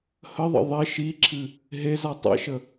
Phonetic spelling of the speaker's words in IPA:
h ə ðˤ ə̰ ðˤ i ʃ i ǁʰ ɨ | ɦ e z a tˤ ḛ ʃ ə

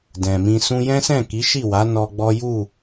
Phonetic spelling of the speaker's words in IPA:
d ɛ̃˨ m ĩ˧ s ũ˧ j ɛ̃˦ s ɛ̃˦˨ k i˨˦ ʃ i˦˨ w a˨˦ n ɔ˧ ɡ͡b ɔ˦ j u˦˨

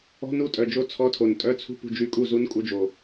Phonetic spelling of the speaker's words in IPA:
ɔ̤˧˥˧ n u˥˩ tʼ œ˨˩ d͡ʒ o˧˥ t͡sʰ ɔ˧˥˧ tʰ o˨˩ n tʼ œ˧˥˧ t͡sʰ ṳ˥˩ p ṳ˥˩ d͡ʒ y˧˥ kʼ u˥˩ z u˧˥ n kʼ u˧˥ d͡ʒ o˨˩

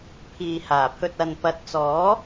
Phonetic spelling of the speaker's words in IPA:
pʰ iː˨ h aː˨˩ pʰ ɵ˨ t̚ ɐ˨ n p ɐ˨ t̚ t͡s ɔː˨˥

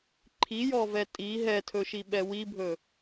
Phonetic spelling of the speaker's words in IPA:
ǃʰ i j ɔ v ɛ tʼ i ɦ ɛ tʰ ɵ ʃ i ɓ ɛ w i bʱ ɵ

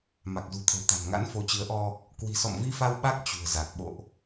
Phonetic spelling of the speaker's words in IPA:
m a˨˩ k̚ z ṳ˨˩ t̪ʰ ə̤˨˩ w t̪ a̤˨˩ n ŋ a̰˧˥ n f o˨˦ t͡ɕ ɨ˨˦ ə̯ ʔ ɔ˧ | k w i̤˨˩ s ɔ̰˧˨ m v i˧ f a˧ w ɓ a˦˥ k̚ t͡ɕ ṳ˨˩ ə̯ z a˨˩ k̚ ɓ o̰˧˨ ʔ

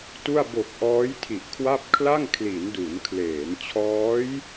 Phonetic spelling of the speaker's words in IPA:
t u˥˩ a̯ b o˨˩ k̚ ʔ ɔː˦˥ j tʰ i˨˩ ʔ kʰ w a˥˩ p̚ kʰ l a˥˩ ŋ kʰ l i˩˦ n d u˩˦ n kʰ l eː˩˦ n t͡ɕʰ ɔː˦˥ j

